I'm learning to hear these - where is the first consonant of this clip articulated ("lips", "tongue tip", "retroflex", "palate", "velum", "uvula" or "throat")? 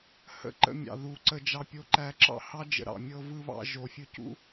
throat